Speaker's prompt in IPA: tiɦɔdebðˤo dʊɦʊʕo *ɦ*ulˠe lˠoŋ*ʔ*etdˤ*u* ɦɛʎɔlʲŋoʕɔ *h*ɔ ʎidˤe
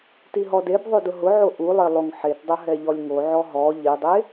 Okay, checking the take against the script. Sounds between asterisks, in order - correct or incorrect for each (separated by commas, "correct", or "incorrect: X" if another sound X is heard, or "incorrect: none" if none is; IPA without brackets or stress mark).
incorrect: ʔ, incorrect: ħ, incorrect: ʊ, incorrect: ɦ